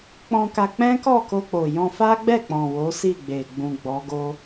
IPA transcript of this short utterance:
k͡pɔ̃˧ka˧k͡pɛ̃˦ kɔ˦˨ko˧k͡po˨ jɔ̃˧fa˦ɡ͡bɛ˦˨k͡pɔ̃˨ wo˨˦si˦˨ɡ͡be˨ ɡ͡bũ˨ ɡ͡bɔ˨˦ɡo˦

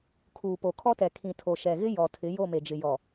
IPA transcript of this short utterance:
kʰuː˨po˨kʰɔ˦tɛ˨ kʰĩ˨ tʰo˨ʃɛ˨ɣɪ˦ jɔ˨tʰɪ˨˦ jo˦˨me˨d͡ʒɪ˨ jɔ˨

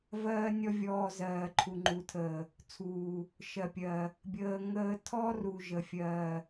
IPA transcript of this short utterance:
vɜː˦nʲɔ˦vʲɔː˧ zɜː˨ǃʰu˨ŋ͡ǃu˨tʰəː˨ | t͡sʰuː˨ | ʃɜ˨pʲɜ˨ | bʲəː˧ ŋəː˧tʰɔ˦ ru˨ ʒə˨ fʲɜː˨

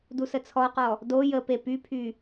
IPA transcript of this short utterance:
dusət͡sʰɔqɔ | do jəpe pypʰy

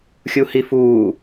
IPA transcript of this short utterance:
xʲuhifuː

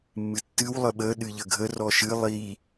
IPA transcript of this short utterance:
mːɨtːɨw lˠəɓə ɗɨʎəɡʱə rɔʃɨ lˠi

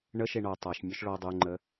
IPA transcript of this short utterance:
ɳə ʃeɳɔ tˤaʃ mʲœʃɭɔ dˤuŋ͡ǃə

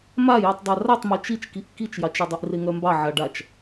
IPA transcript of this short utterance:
majitˤ dˤaratˤmœ t͡ʃit͡ʃkiʔ kit͡ʃjɑt͡ʃœdˤiʔ reŋœmbɑ ʕaɖat͡ʃ

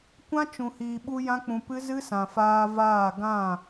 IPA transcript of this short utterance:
kʷã˦t͡ʃũ˨hiː˨ɓu˧ jã˦k͡pũ˧pɨ˦ zɨ˦sã˨faː˧vaː˦˨ ɡã˦˨

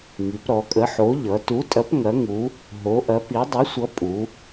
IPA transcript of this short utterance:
ŋi˩˧p ɾɔ˩˧kʼə˨˥ħo˨˥ ʎʌ˩˧tu˨˥tʼɐ˨˥p ŋɐ˨˥ŋu˨˥ | ɦo˨˥ʔɐ˨˥pi˨˥ dˤi˨˥sʷʌ˨˥ pʼu˩˧

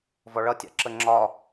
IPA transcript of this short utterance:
vɔɭʌtʲɑ̰ ǁəŋ͡ǁɒ

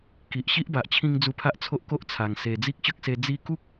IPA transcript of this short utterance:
ki˨ʔɕi˦ʔba˨ʔt͡ɕʰĩ˧ŋ d͡zu˧pʰa˦ʔt͡sʰo˦ʔ ko˦ʔt͡sʰa˨˩ŋ se˨˩d͡zi˦k̚ɕə˦k̚se˧ d͡zi˧ku˦k̚

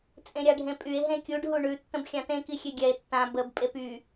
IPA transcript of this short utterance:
t͡sʼẽɾʲaɖʱẽpʼye̯ ɦẽkʲuɖ ɦuɳʉ tːə̃bxʲãtẽ kixʲeɡʲɛe̯ tːã bəb pʼepy

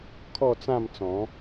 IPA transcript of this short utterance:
kʰɔ˥˧t͡sã˥˧m t͡sɔ̃˨˦

